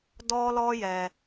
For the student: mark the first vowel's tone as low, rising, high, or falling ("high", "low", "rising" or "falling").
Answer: high